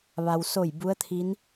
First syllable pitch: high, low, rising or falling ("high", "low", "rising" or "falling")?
low